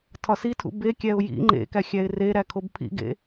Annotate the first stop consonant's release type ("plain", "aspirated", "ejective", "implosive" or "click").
aspirated